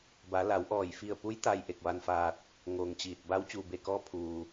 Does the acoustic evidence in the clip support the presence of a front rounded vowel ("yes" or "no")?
no